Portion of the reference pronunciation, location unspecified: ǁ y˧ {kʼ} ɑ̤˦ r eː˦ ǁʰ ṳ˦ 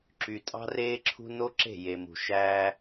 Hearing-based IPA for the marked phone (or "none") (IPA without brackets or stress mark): tʼ